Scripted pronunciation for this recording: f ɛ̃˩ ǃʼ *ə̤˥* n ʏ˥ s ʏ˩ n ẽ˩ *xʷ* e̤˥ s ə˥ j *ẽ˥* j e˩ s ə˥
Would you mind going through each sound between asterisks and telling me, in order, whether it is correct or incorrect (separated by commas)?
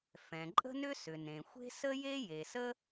correct, correct, incorrect